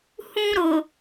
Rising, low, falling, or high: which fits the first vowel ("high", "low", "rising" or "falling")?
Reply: high